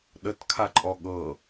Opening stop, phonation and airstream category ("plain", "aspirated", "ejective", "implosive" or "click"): implosive